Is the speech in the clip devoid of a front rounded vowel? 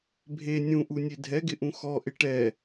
yes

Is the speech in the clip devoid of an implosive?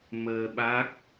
no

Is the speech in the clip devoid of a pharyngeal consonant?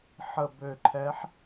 no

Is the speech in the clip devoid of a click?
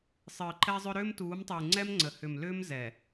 no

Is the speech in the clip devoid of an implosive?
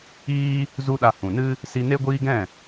no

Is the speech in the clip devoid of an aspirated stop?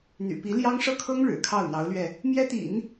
no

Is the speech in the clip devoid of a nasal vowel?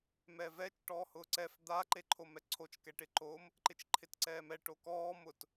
yes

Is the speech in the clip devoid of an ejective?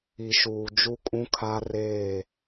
no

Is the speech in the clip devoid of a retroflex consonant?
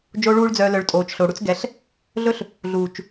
no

